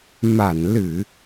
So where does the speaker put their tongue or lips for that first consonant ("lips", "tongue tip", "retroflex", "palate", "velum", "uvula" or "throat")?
lips